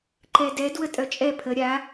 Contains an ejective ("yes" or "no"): yes